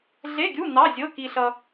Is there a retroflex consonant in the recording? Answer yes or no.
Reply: no